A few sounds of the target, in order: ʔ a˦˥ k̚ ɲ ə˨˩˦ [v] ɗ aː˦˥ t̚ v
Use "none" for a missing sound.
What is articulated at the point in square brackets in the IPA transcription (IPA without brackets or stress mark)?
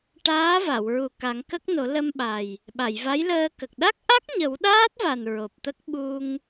w